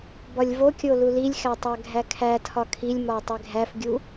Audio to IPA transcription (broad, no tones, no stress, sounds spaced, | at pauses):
b ɒ lʲ v o kʲ o l u l i lʲ x æ tˤ æ ɡʱ æ kʰ æ tʰ ɒ kʰ i lʲ m ɒ tˤ e ɡʱ æ f ɡʲ u